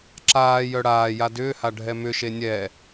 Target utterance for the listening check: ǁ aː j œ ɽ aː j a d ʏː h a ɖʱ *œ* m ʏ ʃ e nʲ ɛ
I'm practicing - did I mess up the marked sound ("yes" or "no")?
yes